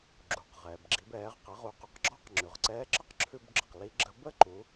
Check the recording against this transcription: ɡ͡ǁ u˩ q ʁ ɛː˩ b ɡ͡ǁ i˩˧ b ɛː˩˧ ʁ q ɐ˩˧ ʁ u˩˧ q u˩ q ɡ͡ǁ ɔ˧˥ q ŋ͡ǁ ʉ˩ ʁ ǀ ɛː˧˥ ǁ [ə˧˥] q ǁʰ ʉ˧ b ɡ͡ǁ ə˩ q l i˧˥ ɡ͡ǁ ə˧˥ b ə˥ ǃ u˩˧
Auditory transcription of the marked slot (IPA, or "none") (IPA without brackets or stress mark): ə˥